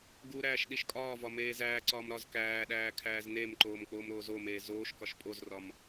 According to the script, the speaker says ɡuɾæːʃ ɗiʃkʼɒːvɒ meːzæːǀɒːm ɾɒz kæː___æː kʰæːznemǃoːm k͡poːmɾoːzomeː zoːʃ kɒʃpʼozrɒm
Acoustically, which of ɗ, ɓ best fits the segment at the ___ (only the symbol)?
ɗ